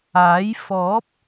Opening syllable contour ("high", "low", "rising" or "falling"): rising